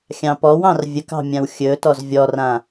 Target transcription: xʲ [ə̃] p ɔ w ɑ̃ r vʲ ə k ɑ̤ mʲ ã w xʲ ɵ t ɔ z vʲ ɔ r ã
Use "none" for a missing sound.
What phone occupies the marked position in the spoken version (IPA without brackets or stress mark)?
ɑ̃